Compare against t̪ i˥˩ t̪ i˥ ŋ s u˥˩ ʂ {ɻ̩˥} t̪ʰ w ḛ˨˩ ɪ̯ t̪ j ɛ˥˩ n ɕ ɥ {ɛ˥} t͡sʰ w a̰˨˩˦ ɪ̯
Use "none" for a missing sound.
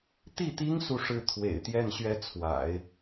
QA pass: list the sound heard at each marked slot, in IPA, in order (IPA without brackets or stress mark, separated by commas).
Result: ɻ̩˥, ɛ˥